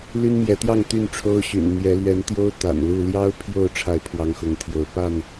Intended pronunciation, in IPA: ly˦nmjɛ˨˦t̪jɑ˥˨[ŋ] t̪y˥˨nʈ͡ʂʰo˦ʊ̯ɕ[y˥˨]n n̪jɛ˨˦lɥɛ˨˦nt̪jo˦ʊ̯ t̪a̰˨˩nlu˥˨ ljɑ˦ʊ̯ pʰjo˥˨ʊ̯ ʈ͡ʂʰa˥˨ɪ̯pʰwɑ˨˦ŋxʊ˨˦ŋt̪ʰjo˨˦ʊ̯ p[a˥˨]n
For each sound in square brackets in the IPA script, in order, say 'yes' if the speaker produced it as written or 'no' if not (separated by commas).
yes, no, yes